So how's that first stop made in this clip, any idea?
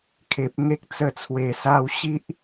aspirated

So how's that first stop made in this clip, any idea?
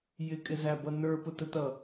ejective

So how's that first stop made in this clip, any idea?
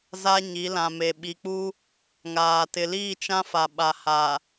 implosive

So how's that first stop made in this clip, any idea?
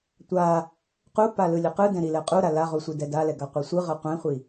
plain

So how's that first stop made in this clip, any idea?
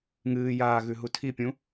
aspirated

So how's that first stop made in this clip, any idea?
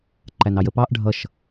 click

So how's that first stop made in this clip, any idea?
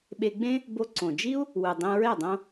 implosive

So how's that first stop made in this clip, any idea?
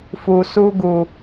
plain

